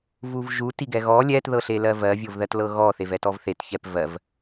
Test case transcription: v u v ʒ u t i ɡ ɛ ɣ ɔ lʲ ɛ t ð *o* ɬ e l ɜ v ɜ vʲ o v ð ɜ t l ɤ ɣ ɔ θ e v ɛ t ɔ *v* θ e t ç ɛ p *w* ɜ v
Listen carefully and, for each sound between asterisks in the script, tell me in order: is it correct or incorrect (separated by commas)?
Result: incorrect, correct, incorrect